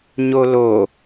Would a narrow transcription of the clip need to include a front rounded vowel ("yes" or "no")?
no